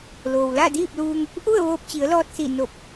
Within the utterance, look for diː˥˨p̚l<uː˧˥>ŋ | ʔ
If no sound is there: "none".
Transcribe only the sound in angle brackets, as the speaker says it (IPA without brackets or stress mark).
uː˧